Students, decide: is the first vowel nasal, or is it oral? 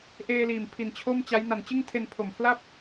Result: oral